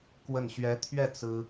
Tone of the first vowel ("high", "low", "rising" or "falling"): falling